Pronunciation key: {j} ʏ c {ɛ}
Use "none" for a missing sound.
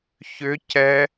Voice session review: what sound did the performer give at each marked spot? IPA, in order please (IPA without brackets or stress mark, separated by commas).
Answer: ç, ɛ